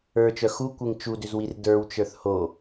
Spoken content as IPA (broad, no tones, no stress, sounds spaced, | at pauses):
ə˞ t͡ʃ œ x u kʷ e ŋ t͡ʃ u d ʏ z w i r d ə˞ w t͡ʃ ə˞ θ h o